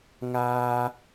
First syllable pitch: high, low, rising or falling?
high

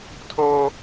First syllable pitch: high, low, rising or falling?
high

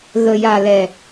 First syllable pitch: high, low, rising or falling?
low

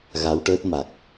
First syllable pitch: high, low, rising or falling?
rising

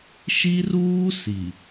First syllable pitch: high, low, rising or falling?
high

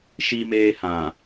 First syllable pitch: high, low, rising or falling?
high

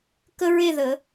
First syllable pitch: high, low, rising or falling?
high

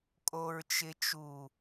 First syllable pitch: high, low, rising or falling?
low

